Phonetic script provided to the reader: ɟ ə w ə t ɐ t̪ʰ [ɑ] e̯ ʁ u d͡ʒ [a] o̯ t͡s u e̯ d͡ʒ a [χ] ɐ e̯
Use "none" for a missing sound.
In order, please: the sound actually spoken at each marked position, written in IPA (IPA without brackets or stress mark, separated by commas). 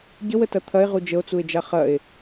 ɐ, ə, χ